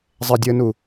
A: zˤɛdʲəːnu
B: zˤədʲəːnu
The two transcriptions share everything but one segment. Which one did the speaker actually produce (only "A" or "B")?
A